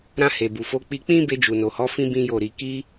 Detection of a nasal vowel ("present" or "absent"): present